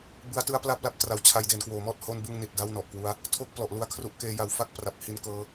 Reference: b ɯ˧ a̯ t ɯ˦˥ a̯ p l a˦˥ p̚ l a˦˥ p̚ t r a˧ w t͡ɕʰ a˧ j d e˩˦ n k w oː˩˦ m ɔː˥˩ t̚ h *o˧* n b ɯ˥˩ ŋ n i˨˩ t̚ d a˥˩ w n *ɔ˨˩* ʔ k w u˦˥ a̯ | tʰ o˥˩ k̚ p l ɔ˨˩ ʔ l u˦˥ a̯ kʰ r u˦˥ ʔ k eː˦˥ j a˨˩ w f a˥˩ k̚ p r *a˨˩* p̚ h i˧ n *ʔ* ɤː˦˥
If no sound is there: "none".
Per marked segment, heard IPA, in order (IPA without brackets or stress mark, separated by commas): o˥˩, ɔ˨˩, a˨˩, k